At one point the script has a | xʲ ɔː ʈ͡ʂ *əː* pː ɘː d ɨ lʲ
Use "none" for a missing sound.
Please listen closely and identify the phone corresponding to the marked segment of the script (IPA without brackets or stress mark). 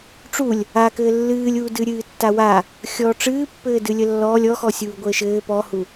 ɨː